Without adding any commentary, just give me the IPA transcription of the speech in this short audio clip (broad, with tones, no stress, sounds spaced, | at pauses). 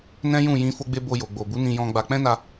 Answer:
n ɛ̃˦ j ũ˦˨ j ĩ˧ f o˧ ɡ͡b e˧ b o˧ j o˨ ɡ͡b o˨ b u˨˦ n ĩ˧ j ɔ̃˧ ɡ͡b a˧ k͡p ɛ̃˦ n a˧